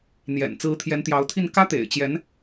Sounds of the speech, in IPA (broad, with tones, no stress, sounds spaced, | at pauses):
n̪ j ɛ̰˨˩ n t͡s ɹ̩˧˥ t̪ʰ j ɛ˧˥ n t̪ j ɑ˧˥ ʊ̯ t̪ʰ i˥˩ n k ä˥ t̪ ḛ˨˩ ɪ̯ t͡ɕ j ɛ˧˥ n